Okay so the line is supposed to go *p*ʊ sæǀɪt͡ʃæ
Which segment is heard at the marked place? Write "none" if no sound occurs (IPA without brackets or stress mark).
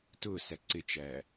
t